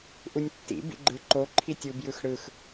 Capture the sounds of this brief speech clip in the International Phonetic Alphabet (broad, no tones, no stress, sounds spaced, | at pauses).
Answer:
ʔ u nʲ tː ḭ b ḭ ɡ͡ǃ ɯ ǃ o ǃʰ i tʲ u b j ɯ x ɽ ɯ x